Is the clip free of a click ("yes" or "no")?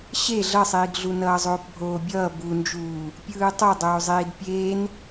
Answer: yes